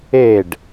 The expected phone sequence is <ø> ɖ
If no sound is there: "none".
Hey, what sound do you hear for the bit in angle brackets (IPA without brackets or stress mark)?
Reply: e